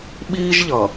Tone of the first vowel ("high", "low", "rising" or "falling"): high